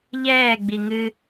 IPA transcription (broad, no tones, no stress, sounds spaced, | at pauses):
ʎ ɛː ɡ͡b i ŋ ɨ